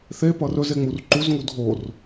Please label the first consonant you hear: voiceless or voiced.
voiceless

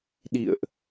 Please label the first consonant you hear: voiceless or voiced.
voiced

